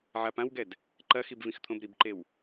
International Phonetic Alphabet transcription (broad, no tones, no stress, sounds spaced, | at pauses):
ʕ a p ã w ɡ ɛ d | ǃ ɐ x i b v ĩ x t̪ʰ õ b ɾ i b ǃ e w